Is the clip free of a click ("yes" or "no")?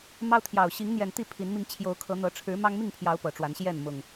yes